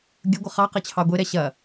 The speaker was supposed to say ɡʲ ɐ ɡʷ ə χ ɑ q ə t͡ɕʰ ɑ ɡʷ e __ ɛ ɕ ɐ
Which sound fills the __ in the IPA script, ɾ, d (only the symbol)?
ɾ